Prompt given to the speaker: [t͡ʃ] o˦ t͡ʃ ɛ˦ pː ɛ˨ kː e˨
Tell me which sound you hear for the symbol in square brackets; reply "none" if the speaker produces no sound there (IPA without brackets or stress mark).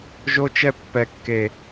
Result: ʒ